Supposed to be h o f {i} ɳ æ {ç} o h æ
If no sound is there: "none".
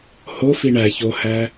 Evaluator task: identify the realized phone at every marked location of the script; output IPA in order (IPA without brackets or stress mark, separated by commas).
i, ç